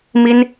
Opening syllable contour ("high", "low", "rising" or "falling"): high